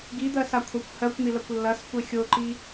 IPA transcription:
ɡid̪ɜsakʷʰakʷ hɜkʷn̪ilɐkʷ lːɐskʷe xʲoǃi

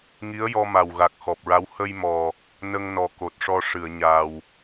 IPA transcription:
ŋi˧˥ə̯jɔ˧ma˨˩wɣa˨˩k̚ xɔ˨˩p̚ɹa˧˥w hə˧jmɔ˨˩ | nə˧ŋnɔ˨˩ ko˨˩t̚ʂɔ˧ ʂɨ˨˩˨ə̯ɲaː˨˩w

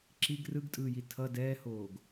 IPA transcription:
ǁiɡ rɯɡtʼɯːji tʰʌ dɛːhoːɡ

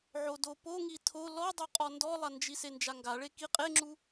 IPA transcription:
ʕodopoŋi tʰo lɔdˤuqʼɔ ndɔlˠand͡ʒi send͡ʒaŋɡa ɭeki qʼeŋ͡ǁu

